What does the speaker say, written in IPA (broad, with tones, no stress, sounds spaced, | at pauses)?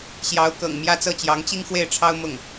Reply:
ɕ j ɑ˧˥ ʊ̯ k ɤ̰˨˩ ŋ m j ä˥˧ t͡s ɤ˥˩ t͡ɕ j ɑ˧˥ ŋ t͡ɕ i˥ ŋ x w e˥˩ ɪ̯ ʈ͡ʂʰ ɑ˥ ʊ̯ m ʊ˥˩ ŋ